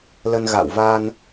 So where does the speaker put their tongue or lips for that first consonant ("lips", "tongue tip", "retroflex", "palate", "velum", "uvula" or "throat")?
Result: tongue tip